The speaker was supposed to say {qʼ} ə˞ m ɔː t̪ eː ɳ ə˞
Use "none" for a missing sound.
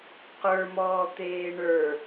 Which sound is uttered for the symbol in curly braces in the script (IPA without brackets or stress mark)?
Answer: q